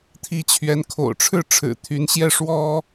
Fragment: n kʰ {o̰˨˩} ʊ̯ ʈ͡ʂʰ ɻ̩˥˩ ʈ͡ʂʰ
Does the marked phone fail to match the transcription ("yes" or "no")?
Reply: no